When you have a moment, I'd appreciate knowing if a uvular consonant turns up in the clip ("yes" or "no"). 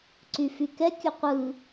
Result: yes